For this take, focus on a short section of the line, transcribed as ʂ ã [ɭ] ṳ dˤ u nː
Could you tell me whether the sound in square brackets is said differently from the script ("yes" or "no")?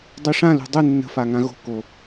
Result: yes